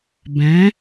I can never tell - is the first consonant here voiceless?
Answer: no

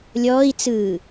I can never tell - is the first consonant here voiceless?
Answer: no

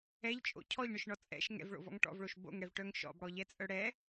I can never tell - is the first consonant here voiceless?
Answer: no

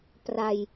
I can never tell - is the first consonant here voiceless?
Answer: yes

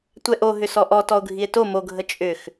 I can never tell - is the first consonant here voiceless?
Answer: yes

